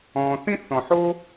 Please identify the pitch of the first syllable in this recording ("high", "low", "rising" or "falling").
low